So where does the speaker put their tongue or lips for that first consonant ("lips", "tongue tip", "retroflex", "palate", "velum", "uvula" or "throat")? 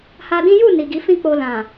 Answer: throat